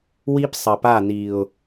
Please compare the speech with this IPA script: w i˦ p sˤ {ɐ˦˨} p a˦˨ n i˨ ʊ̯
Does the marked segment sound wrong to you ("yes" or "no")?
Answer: yes